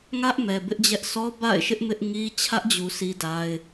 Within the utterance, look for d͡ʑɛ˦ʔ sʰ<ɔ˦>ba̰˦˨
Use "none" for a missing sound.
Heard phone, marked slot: ɔ˦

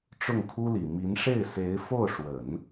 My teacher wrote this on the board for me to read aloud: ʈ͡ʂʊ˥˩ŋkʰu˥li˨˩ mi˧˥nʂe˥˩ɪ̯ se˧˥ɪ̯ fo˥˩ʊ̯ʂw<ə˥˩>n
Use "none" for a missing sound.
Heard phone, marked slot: ə˨˩˦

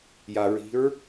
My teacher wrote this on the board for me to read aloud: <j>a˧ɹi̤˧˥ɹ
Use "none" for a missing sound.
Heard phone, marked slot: j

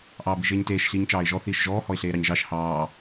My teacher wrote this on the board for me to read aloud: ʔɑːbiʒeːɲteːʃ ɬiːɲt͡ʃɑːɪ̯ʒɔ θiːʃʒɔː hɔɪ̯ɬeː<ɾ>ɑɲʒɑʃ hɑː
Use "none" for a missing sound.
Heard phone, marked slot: ɾ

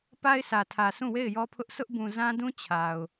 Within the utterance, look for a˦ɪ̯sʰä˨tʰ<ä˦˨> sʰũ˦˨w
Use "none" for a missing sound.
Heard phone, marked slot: ä˨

